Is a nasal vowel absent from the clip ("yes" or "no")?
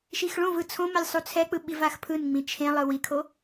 no